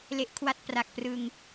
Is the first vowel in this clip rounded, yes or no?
no